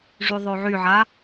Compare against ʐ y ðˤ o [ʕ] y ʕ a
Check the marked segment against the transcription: correct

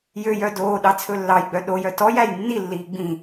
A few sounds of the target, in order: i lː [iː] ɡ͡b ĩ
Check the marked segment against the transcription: correct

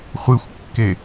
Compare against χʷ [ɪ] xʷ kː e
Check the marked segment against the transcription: incorrect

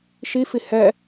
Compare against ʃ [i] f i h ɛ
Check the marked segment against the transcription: correct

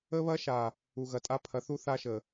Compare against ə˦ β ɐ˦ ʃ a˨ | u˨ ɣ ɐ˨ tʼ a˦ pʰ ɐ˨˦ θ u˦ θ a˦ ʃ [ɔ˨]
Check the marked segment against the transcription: incorrect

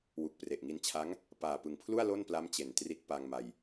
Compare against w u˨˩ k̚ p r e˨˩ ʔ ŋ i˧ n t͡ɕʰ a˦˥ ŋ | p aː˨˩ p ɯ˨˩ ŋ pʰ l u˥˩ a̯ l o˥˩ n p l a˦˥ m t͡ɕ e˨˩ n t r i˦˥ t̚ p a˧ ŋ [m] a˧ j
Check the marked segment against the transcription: correct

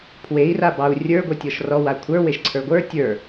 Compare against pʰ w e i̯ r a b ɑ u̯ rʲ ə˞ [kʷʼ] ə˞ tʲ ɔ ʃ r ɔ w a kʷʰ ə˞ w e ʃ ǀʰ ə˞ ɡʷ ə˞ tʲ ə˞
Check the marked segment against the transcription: incorrect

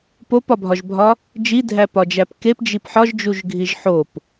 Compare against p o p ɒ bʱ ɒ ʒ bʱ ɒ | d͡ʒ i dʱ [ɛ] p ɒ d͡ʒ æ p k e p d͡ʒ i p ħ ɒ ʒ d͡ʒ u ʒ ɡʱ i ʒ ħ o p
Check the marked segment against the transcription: incorrect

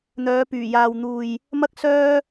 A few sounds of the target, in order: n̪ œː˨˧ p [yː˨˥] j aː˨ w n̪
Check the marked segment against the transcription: incorrect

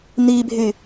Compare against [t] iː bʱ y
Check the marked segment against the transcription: incorrect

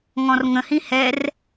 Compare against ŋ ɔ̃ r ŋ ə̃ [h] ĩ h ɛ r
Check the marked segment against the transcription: correct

